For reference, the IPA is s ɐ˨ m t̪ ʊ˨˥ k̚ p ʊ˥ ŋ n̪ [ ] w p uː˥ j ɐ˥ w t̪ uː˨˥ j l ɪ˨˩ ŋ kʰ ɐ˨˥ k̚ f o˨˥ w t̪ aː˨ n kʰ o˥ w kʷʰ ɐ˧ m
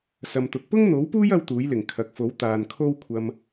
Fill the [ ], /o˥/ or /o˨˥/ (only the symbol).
o˨˥